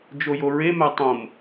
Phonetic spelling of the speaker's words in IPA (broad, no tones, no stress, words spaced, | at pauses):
d͡ʒojoɹe mætˤõm